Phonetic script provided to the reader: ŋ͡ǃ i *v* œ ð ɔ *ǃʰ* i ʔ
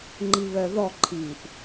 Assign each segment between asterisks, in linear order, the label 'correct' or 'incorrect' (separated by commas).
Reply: incorrect, correct